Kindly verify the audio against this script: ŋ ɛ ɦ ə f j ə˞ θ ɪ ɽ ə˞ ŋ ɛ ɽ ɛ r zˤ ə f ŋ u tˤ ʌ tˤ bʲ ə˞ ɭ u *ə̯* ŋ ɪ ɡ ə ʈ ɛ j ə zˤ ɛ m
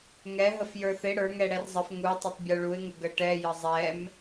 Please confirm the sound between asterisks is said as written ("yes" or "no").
no